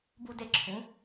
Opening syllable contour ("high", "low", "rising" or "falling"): falling